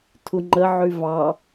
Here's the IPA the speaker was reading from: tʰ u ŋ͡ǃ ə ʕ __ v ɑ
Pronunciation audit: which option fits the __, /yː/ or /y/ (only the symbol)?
y